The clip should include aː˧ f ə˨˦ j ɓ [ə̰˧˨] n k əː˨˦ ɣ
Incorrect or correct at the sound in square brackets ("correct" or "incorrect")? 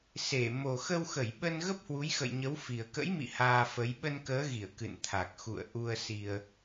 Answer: incorrect